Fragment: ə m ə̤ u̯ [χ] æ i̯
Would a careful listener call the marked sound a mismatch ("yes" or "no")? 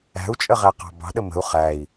no